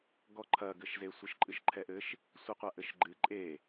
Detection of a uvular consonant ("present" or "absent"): present